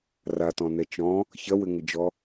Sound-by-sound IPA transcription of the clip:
ratɔ̃nɛ t͡ʃɔ̃ | çɐwɘŋɘd͡ʒɔ

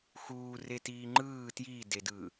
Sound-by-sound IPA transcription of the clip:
xuː retiːŋ͡ǃɯː tjidedɯ

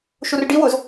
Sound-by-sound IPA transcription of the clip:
ʃurɖiwʊz

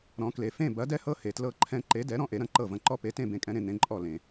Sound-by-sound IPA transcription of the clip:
ɾɔ̃˨˥kle˨ fẽ˦˨bɐ˨˥dɛ˦hɤ˦ he˨tlɤ˦ǃʰɛ̃˦ ǃe˨˥dɛ˨˥ɾɔ̃˦ ʔe˨˥ɾɐ̃˨˥ǃɤ˦˨vɐ̃˦˨ ǃɔ˦pe˨˥tẽ˦˨ bẽ˦˨kʼɛ̃˦ɾẽ˦ n̪ẽ˨˥ǃʼɔ˦˨ lẽ˨

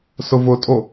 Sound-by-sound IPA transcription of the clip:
sʊvʊtʼo

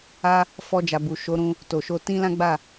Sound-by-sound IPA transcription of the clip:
a˧ | fɔ˧d͡ʒa˨bu˨ ʃo˨˦ɾũ˧ | to˨ʃo˧ tĩ˦lã˦ɡ͡ba˦˨

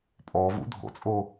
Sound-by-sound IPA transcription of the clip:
pʼɔvṵ dʱo̰t͡sʼo

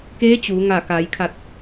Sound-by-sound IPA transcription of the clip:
keː˧˥ t͡ɕuː˩˧ ŋa˧˩ka˩˧j kʰa˧˩t̚

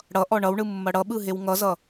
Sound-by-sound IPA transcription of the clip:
ɽʌʔɔ ɳʌwɳɯ mːʌɽʌɓɯ ɦewŋʌzʌ

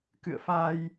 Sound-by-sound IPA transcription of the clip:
kɨ̰˧˨ə̯fa˧j

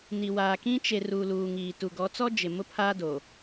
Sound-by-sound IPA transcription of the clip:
ni˨ waː˨kĩ˦ t͡ʃe˨ ruː˨luː˨ŋiː˨ tu˨ɡɔ˨˦t͡sɔ˦ d͡ʒɪ˨ mʊ˦pʰa˦do˨

